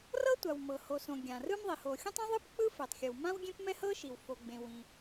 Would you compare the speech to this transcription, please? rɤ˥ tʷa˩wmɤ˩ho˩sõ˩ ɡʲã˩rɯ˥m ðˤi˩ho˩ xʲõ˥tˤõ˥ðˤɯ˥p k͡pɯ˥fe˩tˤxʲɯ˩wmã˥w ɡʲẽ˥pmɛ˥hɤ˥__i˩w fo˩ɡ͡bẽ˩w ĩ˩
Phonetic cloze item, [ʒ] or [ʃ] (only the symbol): ʃ